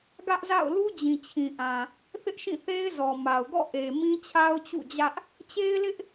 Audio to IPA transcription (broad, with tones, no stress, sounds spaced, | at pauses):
ɡ ä˦ ʔ z a̰˦˨ ʊ̯ l u˦ d͡ʑ ĩ˨ t͡ɕʰ ĩ˨ ʔ ã˨ | θ ɪ˦ ʔ ʃ ĩ˦˨ θ e˦ ɪ̯ z ɔ˨ m a˨ ʊ̯ ɡ ɔ̰˦˨ ʔ e˨ m ĩ˦ t͡ɕʰ a˦ ʊ̯ t͡ɕ ṵ˦˨ d͡ʑ ä˦ ʔ | t͡ɕ e˦ ɪ̯ l ɪ˦ ʔ